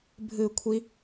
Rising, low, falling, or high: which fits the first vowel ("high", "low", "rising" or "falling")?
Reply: falling